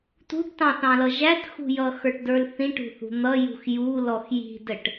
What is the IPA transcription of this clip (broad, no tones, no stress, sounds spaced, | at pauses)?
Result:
t ṳ ʈ t ɑ̃ θ ɑ̃ l ʌ ʒ æ t x ṳ j ʌ x ə˞ ʈ d ə˞ l θ ĩ ʈ ṳ θ ṳ n̪ ʌ j ṳ x j u l ɔ x j i̤ d ə ʈ